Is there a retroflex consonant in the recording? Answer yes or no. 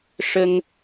yes